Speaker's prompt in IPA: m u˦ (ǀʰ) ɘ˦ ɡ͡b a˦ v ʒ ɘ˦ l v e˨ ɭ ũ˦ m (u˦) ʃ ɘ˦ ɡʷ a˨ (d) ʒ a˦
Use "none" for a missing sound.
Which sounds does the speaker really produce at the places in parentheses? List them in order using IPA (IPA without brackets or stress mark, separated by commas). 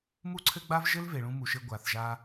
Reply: ǀʰ, u˨, θ